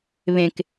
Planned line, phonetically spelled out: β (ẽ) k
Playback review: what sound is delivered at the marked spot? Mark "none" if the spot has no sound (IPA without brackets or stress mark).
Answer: ẽ